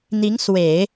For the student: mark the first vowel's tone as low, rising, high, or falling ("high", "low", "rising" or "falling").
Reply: rising